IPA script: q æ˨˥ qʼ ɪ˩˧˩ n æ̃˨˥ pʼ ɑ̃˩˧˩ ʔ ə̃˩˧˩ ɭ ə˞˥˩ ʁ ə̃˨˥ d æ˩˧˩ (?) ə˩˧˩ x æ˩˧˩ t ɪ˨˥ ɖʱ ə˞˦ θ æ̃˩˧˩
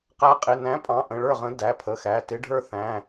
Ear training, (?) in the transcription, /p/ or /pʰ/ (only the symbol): pʰ